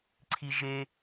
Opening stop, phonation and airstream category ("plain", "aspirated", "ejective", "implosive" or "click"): click